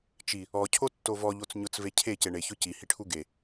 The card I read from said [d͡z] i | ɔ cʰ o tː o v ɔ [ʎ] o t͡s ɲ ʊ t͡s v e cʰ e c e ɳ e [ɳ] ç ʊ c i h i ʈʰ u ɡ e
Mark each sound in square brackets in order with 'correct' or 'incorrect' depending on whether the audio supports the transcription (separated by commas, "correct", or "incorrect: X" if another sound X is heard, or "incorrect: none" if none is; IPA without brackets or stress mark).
incorrect: t͡ʃ, correct, incorrect: none